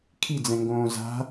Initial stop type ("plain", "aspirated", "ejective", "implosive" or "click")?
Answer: aspirated